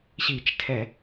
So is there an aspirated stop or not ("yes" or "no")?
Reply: yes